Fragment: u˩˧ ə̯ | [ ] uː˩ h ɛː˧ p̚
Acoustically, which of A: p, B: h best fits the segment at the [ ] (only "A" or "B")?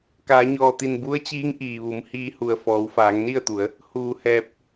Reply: B